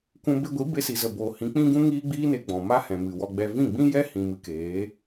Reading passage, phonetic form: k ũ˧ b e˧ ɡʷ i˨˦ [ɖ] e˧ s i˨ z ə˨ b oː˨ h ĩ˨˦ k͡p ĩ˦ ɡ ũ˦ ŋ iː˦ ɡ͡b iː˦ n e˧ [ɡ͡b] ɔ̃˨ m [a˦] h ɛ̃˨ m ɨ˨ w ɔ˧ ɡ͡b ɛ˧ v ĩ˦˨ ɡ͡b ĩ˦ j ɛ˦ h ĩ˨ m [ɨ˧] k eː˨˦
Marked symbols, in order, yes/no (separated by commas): no, yes, yes, yes